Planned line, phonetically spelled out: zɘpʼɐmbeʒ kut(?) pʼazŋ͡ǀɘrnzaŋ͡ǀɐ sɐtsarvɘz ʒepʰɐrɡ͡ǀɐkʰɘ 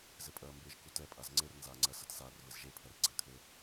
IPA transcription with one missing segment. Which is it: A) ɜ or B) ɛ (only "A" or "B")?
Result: B